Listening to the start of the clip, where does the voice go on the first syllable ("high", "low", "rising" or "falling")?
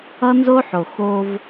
high